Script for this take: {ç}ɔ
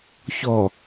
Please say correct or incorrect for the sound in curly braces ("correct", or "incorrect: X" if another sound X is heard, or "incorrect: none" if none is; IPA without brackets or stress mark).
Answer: correct